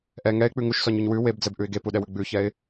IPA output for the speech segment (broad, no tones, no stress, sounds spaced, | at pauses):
ʔ ɛ ŋ ɛ ɪ̯ k͡p ʉ ŋ u ʃ s ɔ ɲ ʉ ɲ w ʉ w e b d͡z ɛ b ʔ ʉ ɪ̯ ɡ e p u ɗ ɛ w ʉ ɡ͡b ʉ ç ɛ ɪ̯